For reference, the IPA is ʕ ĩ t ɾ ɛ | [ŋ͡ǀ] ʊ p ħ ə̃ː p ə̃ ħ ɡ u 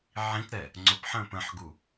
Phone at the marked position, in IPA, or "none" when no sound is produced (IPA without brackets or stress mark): ŋ͡ǀ